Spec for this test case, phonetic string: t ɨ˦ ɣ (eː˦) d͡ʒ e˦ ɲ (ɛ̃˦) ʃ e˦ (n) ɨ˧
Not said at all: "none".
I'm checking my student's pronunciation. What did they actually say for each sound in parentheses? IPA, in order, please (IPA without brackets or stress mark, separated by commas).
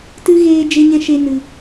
eː˦, ɛ̃˦, n